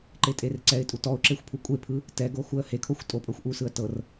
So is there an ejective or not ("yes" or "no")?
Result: yes